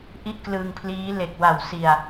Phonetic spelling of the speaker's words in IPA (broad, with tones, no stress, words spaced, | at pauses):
ʔi˥˩ʔklɯ˧ŋpʰliː˦˥ le˨˩k̚wa˨˩wsi˨˩a̯